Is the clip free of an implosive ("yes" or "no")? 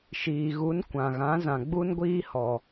yes